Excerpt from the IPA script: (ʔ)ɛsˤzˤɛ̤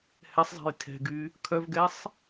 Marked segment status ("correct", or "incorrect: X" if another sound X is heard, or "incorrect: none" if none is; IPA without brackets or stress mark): incorrect: h